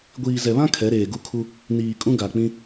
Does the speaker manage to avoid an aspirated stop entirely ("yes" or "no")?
no